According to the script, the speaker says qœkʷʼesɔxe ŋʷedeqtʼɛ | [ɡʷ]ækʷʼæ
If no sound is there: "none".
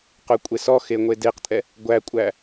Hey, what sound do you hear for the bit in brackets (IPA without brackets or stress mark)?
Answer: ɡʷ